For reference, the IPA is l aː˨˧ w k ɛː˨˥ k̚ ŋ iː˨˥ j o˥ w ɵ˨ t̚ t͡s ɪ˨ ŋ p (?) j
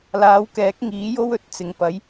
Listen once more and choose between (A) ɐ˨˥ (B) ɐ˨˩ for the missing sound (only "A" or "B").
A